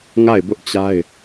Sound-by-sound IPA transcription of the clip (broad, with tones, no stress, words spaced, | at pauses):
ŋa˦˨ɪ̯bʊ˦ʔt͡ɕa˦ɪ̯